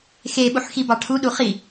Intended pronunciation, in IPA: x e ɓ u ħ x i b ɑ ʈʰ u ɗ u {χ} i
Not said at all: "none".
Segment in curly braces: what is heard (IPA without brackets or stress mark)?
χ